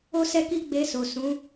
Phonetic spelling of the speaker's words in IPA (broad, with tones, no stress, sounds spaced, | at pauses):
o˦ s ɛ˦ k i˦ ɡ͡b e˧ s o˨ s ũ˨˦